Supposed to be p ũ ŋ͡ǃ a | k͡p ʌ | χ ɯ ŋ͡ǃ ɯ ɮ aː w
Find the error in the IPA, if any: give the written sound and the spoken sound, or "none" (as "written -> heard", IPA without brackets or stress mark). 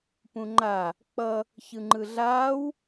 χ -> ç